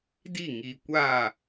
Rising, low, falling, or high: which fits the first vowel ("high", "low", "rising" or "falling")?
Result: falling